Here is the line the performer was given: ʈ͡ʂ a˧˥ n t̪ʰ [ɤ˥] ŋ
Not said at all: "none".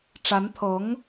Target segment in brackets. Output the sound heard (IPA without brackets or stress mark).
ɤ˧˥